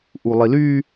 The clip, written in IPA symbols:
ʔ u lˠ i l y

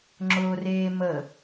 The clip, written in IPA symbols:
ŋ͡ǁ ʊː r eː m ə

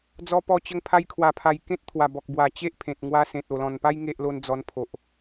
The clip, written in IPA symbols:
d͡z ɔ˧ p ɔ˧ t͡ɕ ə˧ ŋ pʰ a˧ j kʰ w a˨˩ pʰ a˨˩ j k ẽ˦ t̚ t̪ʰ w a˨˩ b ɔ˨ k̚ b w a˨˩ t͡ɕ e˦ ʔ pʰ ẽ˨ t̚ ŋ w a˧ s ẽ˨ t̚ o˨˩ l ɔ̃˨˩ n p a˦ j ŋ e˦ ʔ l o˦ n d͡z ɔ˧ n pʰ o˨ ʔ

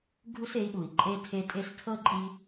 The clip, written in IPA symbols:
ɡʱ u˦ s e˨˦ i̯ ɓ u˨ i̯ ǃʼ e˧ tʰ e˧ tʼ e˧ s tʰ ɤ˦ ǃʼ i˧

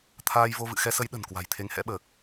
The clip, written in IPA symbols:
t̪ʰ aː˧ j v o˧ v ɨ̰˧˨ x ɛ˧ s ə˨˦ j ɗ ə̤˨˩ n k w a̤˨˩ j t̪ʰ e˨˦ ŋ h ɛ̰˧˥ ɓ əː˨˩ k̚

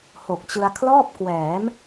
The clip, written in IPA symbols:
h o˨˩ k̚ t͡ɕ ɯ˧ a̯ kʰ l ɔː˥˩ p̚ k w ɛː˩˦ m

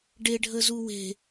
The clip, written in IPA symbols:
ɖ e ɖʱ ə z u w e̤

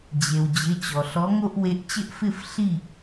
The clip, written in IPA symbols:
d͡ʑ e˩ w d͡ʑ ɪ˩˧˩ t͡ɕ ɔ˩ ɬ ɔ˨˥ ŋ o˦ ʔ w e˨˥ ʔ t͡ɕ ɪ˦ ʔ f ɪ˥˨ f ɬ i˥˨

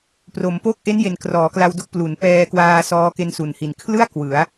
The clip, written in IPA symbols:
p r o˩˦ m p o˥˩ k̚ ʔ e˦˥ n j e˨˩ n k r ɔː˩˦ k l a˧ w d o˦˥ k̚ p l u˩˦ n p ɛː˧ k w aː˧ s ɔː˦˥ k e˧ n s u˨˩ n h i˨˩ n kʰ l ɯ˥˩ a̯ k w ɯ˩˦ a̯

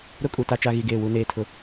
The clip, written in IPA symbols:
ɾ ʊ˦ kʼ u˨ t a˦ t͡ʃ a˦ ɣ i˨ ɡ eː˦˨ w u˨ n eː˨ tʰ ʊ˨

